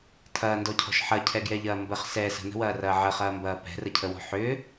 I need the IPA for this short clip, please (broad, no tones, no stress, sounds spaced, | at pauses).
tʰ ɐː n d ɔ cʰ ɔ̤ ʃ ħ ɐ cʰ ɛ ɡ j ɛ ʎ ɐː m b ə χ s ɛː s ə̤ n ə̤ w ɐː r ɐː ʕ ə χ ɐː m b ɐː p ɛ̤ r ə cʰ ə w ɔ̤ ħ ʏː